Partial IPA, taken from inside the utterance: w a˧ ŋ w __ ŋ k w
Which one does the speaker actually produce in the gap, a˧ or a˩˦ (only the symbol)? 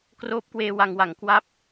a˩˦